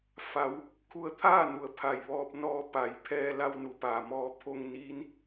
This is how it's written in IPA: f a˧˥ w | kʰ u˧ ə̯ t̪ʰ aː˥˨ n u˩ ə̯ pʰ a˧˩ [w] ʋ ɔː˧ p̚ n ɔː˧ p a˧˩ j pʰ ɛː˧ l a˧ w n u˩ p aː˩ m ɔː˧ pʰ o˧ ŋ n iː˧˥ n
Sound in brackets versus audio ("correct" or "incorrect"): incorrect